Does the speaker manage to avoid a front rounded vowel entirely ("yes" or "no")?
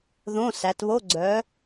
no